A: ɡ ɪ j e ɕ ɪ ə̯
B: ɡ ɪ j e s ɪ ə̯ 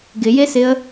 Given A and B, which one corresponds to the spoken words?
B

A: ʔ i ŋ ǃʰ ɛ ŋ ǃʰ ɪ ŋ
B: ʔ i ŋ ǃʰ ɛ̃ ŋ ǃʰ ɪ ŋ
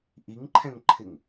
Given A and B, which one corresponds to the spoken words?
B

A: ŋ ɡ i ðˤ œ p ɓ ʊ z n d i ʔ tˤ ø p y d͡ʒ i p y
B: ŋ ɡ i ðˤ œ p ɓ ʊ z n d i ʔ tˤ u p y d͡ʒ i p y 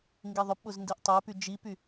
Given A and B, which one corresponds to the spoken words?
A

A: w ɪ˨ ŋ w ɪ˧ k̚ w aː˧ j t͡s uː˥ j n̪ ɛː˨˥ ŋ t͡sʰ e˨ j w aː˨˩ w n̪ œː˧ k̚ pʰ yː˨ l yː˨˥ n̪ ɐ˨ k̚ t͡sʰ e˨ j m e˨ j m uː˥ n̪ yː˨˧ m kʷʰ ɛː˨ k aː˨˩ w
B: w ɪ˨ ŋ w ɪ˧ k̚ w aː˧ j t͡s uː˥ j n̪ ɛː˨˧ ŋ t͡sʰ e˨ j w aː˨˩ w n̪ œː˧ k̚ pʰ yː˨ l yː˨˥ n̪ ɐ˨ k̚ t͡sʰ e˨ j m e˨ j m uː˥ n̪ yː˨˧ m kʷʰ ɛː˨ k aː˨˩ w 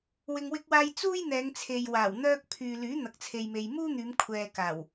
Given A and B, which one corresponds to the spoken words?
B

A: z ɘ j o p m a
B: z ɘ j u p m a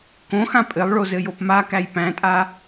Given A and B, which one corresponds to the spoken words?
A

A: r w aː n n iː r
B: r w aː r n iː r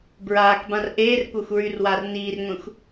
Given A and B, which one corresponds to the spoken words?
B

